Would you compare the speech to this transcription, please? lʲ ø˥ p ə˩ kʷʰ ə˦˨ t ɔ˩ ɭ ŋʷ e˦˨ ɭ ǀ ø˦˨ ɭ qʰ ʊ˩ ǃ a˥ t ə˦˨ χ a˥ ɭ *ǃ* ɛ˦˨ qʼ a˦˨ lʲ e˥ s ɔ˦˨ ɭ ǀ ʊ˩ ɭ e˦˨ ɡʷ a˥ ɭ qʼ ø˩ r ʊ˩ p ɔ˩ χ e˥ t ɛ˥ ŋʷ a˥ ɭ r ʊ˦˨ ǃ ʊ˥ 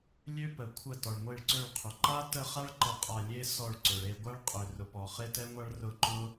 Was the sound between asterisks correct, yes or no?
yes